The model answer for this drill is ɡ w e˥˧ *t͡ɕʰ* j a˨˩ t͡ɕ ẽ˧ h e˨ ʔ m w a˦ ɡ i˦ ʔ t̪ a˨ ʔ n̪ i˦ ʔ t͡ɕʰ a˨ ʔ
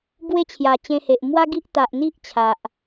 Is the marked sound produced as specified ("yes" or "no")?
yes